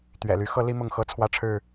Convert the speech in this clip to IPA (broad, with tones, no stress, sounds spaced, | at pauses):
t̪ ɥ ɛ̰˨˩ l y˨˦ x ɤ˦ l i˦ m ʊ˥˨ ŋ x ɤ˦ t͡sʰ w ä˦ ʈ͡ʂʰ ɻ̩˥˨